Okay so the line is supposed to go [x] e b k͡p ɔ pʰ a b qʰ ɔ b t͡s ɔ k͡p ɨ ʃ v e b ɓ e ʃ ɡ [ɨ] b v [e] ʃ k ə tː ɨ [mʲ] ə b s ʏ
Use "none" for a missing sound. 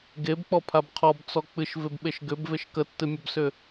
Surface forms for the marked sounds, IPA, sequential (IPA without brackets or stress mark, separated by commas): ɡ, ʏ, e, mʲ